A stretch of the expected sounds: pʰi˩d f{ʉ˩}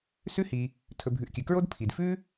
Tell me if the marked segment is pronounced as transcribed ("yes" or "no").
no